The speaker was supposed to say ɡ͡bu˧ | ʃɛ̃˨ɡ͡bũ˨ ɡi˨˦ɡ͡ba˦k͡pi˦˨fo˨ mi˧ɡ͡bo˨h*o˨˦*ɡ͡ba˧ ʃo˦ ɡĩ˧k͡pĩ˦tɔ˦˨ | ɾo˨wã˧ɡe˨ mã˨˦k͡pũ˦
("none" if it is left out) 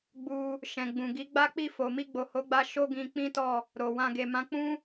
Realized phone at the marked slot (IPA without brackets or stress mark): o˨˦